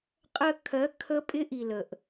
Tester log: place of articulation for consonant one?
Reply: uvular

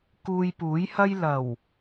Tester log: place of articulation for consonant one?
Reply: velar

